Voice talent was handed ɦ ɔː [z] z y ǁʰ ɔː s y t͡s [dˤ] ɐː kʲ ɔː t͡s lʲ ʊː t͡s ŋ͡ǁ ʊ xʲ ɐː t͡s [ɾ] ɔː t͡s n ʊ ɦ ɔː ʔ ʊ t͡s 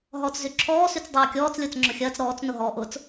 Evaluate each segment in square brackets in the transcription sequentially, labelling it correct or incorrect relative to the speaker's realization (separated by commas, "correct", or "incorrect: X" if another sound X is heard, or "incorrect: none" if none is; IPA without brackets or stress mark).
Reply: incorrect: t͡s, correct, correct